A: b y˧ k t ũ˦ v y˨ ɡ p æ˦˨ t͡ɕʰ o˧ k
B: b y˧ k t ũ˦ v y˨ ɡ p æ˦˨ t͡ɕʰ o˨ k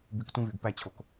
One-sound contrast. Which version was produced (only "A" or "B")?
B